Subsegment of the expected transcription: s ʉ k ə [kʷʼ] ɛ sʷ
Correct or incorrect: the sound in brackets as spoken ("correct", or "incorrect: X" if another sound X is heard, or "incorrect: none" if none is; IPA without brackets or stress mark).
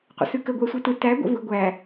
incorrect: ɡʷ